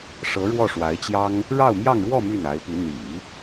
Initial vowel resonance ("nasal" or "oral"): oral